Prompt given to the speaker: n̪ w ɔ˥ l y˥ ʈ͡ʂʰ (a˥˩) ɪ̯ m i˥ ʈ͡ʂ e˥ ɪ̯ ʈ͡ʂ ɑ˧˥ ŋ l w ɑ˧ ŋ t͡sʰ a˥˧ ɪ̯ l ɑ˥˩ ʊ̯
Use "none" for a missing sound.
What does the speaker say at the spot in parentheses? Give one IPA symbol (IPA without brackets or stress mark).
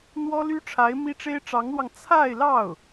a˧˥